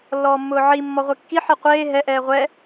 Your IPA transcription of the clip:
lːɔːmːʊːʕi mːɔʁʷekːi ħiqʷeː ɦɛ ʔɛːʁʷɛ

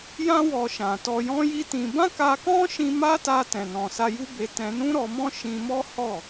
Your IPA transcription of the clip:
jã˦wɔ˧ʃã˨tɔ˧ jɔ̃˦ji˦tĩ˧ bã˦ka˧kɔ̃˦ʃĩ˧ ma˦ta˧ tɛ̃˨nɔ̃˨ sa˧ju˦be˧ tɛ̃˧nũ˦ɾɔ˧mɔ̃˦ ʃĩ˧mɔ˦ hɔ˦˨

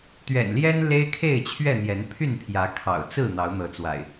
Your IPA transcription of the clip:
t̪ɥɛ̰˨˩n ljɛ˦n le˦ɪ̯kʰe˥˨ɪ̯t͡ɕʰɥɛ˥˨n̪jɛ˨˦n pʰy˥˨npʰjä˨˦ kʰɑ̰˨˩ʊ̯t͡sɹ̩˥˨ n̪ɑ˨˦ʊ̯n̪ɤ˨˦t͡swa̰˨˩ɪ̯

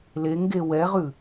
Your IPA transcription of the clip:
leŋɡe wɛʁʉ

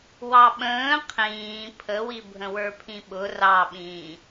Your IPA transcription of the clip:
wɑɓə̃ː qʰĩː pʰəwi bʱə̃wə˞pʰĩɓʊ rɑɓĩː

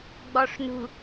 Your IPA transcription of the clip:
ɡ͡bɔʂnṳ

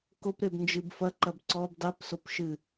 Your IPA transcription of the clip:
kopɾebnd͡ʒɨb fɐǃɐb ǀɔb dˤepsop ʃɨ

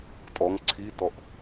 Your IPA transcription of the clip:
tʼɔŋ ǀʰitɔʔ

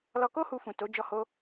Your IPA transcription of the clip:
lɔ˧ko˦ hu˧fũ˨to˨˦ d͡ʒɔ˧ho˧

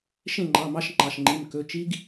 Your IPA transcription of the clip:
ʃẽ˥˨ŋ͡ǃɑ˩˧˩ mɑ˦˥ʃŋ͡ǃɑ˩˧˩ʃŋ͡ǃi˩˧˩m kɵ˩˧˩t͡ʃi˦˥ɡ

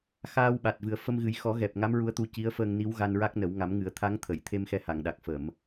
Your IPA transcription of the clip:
xaː˧wɓa˨˩t̚vɨ˨˩ə̯ fə˧mɣɨ˨˩˦j xɔ˨˩˦ɣɛ˨˩p̚ ŋa˧˥mɹu˧ə̯t̪u˧ ci˧˥ə̯fəː˧ŋ ni˧˥wɣa˧nɹa˦˥k̚nə˨˩˦w ŋa˨˩˦mŋɨ˨˩˦ə̯ t̪ʰa˧˥ŋt̪ʰə˨˩˨j t̪ʰe˧mxɛ˧ha˨˩˨ŋɗa˨˩k̚ fə˨˩˨m

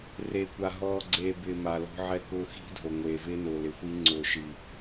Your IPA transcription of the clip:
reː˨kʷa˨ ɦɔː˨ ɡ͡ǀeː˨ bɪː˨ ma˨lɔ̤˦ʕɛ˦ kʊː˦ xi̤˦dʱo˨ ŋʷeː˨vɪː˦nʊː˨ lɪ˨xʷi˦ ŋ͡ǀʊː˦˨ʃi˦

